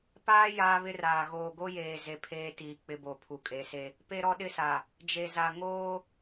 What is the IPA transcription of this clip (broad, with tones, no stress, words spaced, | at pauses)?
paː˦ jaː˦βɪ˦raː˨ ɣoː˨ɡo˦jeː˨ ze˨ pʰeː˦tiː˨ k͡pɪ˦bo˨ pʰu˨kʼe˨˦se˦ | pe˦ɾɔ˦ɗɪ˦sa˨ | d͡ʒe˨za˨ ŋoː˦